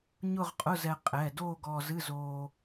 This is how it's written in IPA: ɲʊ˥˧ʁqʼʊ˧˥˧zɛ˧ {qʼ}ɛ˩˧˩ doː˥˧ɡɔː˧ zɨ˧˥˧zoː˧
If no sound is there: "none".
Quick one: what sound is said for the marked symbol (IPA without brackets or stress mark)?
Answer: qʼ